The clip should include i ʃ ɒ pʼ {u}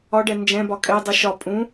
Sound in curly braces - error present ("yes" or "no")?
yes